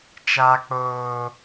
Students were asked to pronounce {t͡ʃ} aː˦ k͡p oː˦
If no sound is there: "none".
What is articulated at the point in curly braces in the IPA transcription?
t͡ʃ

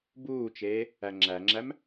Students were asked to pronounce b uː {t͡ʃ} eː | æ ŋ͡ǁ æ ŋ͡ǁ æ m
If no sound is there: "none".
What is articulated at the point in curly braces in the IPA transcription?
t͡ʃ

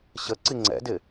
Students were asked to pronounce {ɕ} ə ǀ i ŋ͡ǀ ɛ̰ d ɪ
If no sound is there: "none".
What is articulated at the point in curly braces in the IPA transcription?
ɕ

